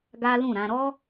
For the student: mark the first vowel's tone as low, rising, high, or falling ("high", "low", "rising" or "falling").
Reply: high